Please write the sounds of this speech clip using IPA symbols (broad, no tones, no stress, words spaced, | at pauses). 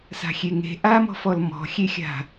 sa̤xʲeŋe̤ ʔamɔ̤fɔl mɔ̤xʲexʲa̤